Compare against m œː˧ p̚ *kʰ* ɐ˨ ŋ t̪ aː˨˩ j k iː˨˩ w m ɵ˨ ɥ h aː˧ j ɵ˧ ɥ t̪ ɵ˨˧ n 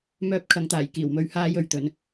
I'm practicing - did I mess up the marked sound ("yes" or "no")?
no